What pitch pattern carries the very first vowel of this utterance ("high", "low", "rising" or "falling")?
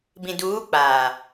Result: low